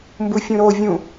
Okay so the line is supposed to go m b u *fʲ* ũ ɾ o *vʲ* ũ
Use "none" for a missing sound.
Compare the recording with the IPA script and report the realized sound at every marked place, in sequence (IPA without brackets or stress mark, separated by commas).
fʲ, vʲ